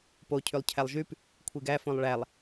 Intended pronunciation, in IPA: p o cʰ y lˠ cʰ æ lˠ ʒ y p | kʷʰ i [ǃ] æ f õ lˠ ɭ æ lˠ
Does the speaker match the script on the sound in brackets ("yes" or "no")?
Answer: no